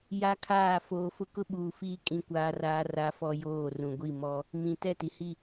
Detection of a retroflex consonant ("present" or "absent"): absent